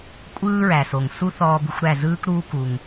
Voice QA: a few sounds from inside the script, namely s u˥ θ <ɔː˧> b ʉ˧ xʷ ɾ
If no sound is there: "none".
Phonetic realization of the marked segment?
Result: ɔː˧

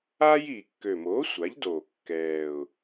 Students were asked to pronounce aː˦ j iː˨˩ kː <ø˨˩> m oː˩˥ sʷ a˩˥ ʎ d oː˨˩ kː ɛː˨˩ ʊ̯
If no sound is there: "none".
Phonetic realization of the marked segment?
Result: ø˨˩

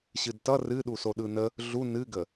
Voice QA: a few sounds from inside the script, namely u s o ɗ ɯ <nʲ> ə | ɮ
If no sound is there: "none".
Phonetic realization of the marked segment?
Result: n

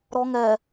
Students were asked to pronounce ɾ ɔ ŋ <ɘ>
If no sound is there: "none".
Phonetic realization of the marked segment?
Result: ɛ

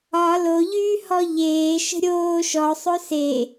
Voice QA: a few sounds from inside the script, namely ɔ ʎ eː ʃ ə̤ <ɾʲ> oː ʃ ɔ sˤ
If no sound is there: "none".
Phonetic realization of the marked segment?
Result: ɾʲ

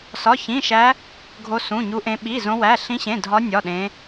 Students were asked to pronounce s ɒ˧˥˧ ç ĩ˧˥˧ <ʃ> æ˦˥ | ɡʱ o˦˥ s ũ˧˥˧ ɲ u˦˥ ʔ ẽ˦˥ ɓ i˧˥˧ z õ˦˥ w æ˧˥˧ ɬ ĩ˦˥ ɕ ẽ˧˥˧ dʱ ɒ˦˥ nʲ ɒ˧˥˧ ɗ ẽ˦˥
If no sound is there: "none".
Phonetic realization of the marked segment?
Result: ʃ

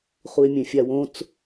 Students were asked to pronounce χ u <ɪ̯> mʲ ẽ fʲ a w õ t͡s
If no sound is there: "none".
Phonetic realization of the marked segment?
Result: ɪ̯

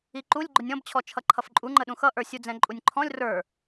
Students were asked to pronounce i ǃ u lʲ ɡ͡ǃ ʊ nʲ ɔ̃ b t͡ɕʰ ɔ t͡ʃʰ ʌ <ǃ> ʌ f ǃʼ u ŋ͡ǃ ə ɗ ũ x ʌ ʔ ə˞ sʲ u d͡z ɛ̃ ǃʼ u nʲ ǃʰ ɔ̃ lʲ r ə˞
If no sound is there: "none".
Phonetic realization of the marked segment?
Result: ǃʰ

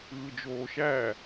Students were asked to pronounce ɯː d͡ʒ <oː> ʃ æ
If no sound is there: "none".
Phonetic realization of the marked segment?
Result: oː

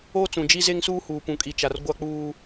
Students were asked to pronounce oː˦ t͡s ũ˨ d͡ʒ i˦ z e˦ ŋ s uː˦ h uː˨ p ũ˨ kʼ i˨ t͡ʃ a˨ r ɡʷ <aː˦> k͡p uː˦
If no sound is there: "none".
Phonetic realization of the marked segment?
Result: a˦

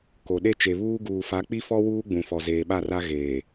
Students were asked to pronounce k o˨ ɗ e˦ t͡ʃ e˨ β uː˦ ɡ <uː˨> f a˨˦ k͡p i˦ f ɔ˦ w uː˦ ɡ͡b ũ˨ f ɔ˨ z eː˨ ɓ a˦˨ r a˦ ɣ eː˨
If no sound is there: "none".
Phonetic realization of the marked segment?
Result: uː˨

